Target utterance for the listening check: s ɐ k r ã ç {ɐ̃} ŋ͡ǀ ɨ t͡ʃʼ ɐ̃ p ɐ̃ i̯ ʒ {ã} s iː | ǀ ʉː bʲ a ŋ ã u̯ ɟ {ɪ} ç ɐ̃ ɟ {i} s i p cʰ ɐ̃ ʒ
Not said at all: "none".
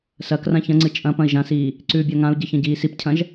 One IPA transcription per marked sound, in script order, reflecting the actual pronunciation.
ɐ̃, ã, ɨ, iː

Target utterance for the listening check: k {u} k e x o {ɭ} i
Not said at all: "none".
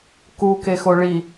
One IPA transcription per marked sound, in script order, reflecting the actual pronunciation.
u, ɭ

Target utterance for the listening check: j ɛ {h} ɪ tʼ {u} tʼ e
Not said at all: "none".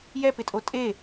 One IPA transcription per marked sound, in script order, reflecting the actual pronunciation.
p, o

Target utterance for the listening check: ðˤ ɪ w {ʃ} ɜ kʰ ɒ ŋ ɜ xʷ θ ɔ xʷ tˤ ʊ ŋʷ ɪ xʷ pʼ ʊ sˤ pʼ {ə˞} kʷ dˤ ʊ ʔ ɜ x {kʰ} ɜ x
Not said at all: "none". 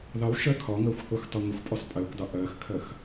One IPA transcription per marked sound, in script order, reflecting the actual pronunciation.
ʃ, ɜ, kʰ

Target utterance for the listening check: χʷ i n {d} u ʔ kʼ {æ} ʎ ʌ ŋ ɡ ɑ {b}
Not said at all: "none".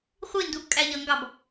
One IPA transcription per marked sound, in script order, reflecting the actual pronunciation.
d, æ, b

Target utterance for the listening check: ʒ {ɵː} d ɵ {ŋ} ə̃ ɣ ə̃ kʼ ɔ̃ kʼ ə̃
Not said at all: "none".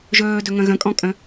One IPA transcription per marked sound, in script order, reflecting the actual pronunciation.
ɵː, ŋ

